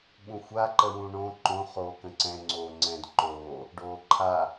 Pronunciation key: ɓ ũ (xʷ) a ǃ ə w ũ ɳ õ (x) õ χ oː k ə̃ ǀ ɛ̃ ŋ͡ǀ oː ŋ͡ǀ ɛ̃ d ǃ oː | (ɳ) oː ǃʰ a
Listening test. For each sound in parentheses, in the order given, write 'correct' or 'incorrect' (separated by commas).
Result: correct, incorrect, incorrect